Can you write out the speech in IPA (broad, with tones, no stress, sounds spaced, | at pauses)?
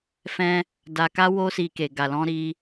f ɛ̃˧ | d a˧ k a˦ w o˦ s i˧ k e˨ ɡ a˨ l ɔ̃˧ ɾ i˧